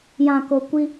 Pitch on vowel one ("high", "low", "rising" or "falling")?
low